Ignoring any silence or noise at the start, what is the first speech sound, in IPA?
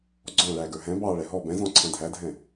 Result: ɡ͡ǀ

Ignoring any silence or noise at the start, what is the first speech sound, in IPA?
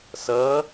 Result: s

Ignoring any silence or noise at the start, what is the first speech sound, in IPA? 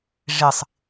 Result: ʐ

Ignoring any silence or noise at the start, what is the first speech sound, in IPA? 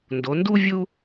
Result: n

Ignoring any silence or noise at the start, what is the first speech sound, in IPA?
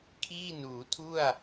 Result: kʰ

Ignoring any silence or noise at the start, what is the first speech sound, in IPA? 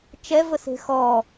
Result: t͡ʃ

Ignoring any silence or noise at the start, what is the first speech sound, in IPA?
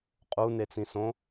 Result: qʼ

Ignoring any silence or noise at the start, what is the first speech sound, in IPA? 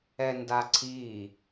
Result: ɛ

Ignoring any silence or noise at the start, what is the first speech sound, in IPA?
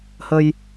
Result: h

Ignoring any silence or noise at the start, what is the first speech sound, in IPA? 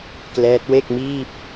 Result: k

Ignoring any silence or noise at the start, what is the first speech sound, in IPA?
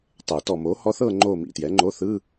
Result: tˤ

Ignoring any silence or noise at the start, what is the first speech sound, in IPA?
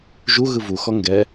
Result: ʒ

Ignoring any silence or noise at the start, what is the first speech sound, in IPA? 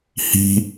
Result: h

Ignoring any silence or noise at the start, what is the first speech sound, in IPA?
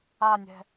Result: a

